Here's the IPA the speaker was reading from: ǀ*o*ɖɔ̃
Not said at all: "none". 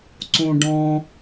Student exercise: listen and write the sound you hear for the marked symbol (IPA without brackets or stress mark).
õ